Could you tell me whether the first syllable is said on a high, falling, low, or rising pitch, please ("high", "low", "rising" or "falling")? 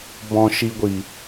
high